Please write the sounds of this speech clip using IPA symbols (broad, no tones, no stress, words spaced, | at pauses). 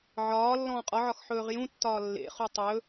ʕɒː lːɔ̃ːqʼɒʕɒx ħɵːʁjũtːɒː lːḛχu tˤɵ